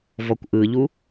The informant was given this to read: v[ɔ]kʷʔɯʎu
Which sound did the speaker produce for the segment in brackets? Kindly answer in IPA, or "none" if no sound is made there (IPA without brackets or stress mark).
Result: ɔ